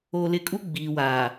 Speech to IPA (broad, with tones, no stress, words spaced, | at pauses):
o˨lɪ˨kʼu˦ ɡ͡biː˨wa˨